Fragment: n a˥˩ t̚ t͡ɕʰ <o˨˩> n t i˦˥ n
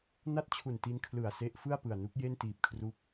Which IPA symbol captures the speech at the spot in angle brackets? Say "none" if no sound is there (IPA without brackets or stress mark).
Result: u˨˩